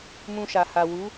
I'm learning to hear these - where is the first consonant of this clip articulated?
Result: lips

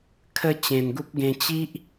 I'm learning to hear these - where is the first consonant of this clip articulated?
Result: velum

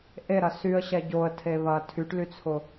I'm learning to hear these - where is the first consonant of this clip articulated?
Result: throat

